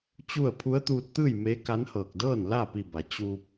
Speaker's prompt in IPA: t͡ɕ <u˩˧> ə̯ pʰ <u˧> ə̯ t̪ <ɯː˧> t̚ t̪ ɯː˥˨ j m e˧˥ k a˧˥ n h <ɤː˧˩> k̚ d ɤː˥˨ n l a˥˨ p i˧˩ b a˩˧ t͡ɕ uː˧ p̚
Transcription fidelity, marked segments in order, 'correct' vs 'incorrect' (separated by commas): incorrect, incorrect, incorrect, correct